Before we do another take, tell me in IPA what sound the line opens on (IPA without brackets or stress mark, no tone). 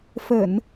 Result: f